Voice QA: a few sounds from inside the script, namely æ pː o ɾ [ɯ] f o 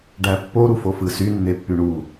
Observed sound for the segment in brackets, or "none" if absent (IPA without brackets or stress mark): u